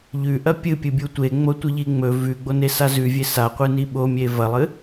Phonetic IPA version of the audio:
ʎ ʉ ʔ ɐ pʲ ɨ pʲ ɨ bʲ u tʷ e ŋ͡m o tʷ ɨ ʎ i ŋ͡m ɵ v ʉ ɡ͡b o n e s a z ʉ vʲ e s a qʷ ɨ n i ɓ o mʲ e v ɐ lˠ ɨ

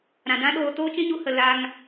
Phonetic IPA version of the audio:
ɾ ã˨ d ã˦ ɗ oː˧ t oː˦ t͡ʃ ĩ˦ ɲ u˧ h ə˨ l a˧ ŋ

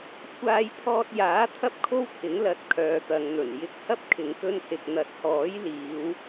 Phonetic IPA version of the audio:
kʷʰ aː˧ j t̪ʰ ɔː˧ t̚ j aː˨˥ t̪ʰ ɐ˥ p̚ kʰ o˥ w t̪ʰ ɪ˨˥ ŋ l ɐ˧ t̚ kʰ œː˨˧ t̪ ɐ˨˧ ŋ n̪ ɵ˨˩ n j ɪ˧ k̚ h ɐ˥ p̚ kʰ ɪ˨˧ ŋ k ɵ˧ n s ɪ˨ k̚ n̪ ɐ˨˥ t̚ h ɔː˨˥ j l iː˨˧ w

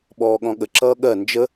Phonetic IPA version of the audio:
ɓ ɔː ɠ ɔ̃ ɠ ə ǁ ʌː ɠ ɜ n d͡ʒ ə

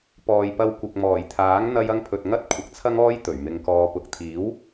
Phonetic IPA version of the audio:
p ɔː˨ j p ɐ˧ w kʷ ɪ˨ k̚ m ɔː˨˩ j t̪ʰ aː˨˥ ŋ n̪ ɐ˧ j ɐ˧ ŋ pʰ ɵ˨ t̚ ŋ ɐ˥ t̚ kʷʰ ɪ˨ k̚ t͡sʰ ɐ˥ ŋ ɔː˥ j t̪ ɵ˨˩ ɥ m ɪ˧ ŋ k ɔː˧ p ʊ˨ k̚ t̪ʰ iː˨˥ w

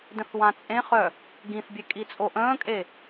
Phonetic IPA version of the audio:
d ə̃ θ w ã t͡sʼ ẽ χ œ | ɡ ĩ θ bʲ e kʼ i t͡sʼ o ʔ ə̃ː kʼ e

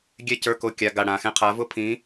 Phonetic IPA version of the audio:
ɡʲ ɛ˥ c ə˞˧˥˧ k o˧˥˧ kʲ a˧˥˧ ɡ a˦˨ ɽ ã˨ x ɛ̃˦˨ qʰ a˨˥ v ʊ˥ pʰ ĩ˨˥

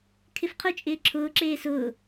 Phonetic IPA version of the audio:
kʰ ɪ f qʰ ʊ t͡ʃʼ ɪː ǁʰ ʊː ǁ eː s ʊː

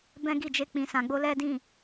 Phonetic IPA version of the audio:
b ɛ̃˦ ɡ i˦˨ d͡ʒ e˧ k͡p ĩ˨ s ã˨ ɡ͡b o˧ l ɛ˦ d ĩ˦˨

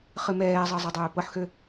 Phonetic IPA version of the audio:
χ ɨ m ɛː zˤ ɤ zˤ ɛ dˤ øː p ɤ ħ x ø

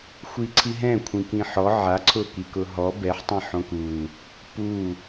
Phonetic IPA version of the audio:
xʷ i ǀʰ i ɦ ɛ̃ kʷʰ ĩ k ĩ ħ ɔ ʕ a ǀʰ ʊ k i k ʊ ɦ ɔ b ɛ ħ tˤ ĩ ħ õ k u | p u

